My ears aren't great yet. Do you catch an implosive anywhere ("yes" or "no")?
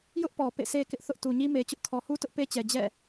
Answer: no